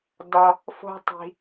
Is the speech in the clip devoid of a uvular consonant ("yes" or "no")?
yes